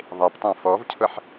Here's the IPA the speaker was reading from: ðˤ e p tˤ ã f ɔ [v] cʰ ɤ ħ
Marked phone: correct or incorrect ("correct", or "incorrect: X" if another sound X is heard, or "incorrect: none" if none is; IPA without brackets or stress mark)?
correct